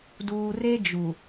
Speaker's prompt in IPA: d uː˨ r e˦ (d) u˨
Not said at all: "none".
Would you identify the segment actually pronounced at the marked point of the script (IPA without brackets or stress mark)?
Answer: d͡ʒ